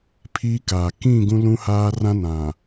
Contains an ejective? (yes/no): no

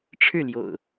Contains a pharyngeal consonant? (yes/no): no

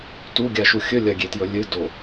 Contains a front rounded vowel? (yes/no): no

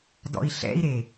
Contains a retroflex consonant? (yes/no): no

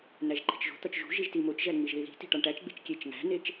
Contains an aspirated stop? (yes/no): no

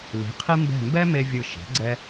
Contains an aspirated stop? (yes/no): yes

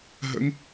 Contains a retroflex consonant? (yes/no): no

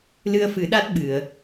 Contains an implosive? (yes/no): yes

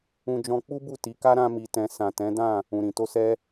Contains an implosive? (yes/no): no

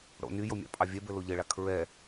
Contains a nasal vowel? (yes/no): no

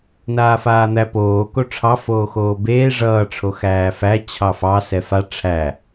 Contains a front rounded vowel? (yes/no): no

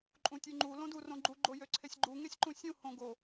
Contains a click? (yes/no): yes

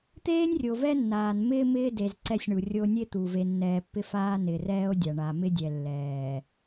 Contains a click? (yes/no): yes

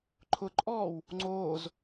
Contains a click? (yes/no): yes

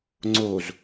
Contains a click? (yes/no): yes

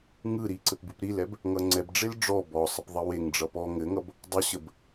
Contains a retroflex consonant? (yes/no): yes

